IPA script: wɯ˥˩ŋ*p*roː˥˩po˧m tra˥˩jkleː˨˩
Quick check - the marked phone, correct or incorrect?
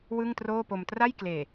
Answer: incorrect